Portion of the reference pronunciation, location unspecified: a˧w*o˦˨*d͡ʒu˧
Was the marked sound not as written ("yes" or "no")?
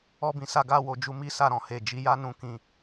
yes